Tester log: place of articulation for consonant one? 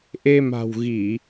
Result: glottal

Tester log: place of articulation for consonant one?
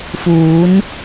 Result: labial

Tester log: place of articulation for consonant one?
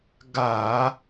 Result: velar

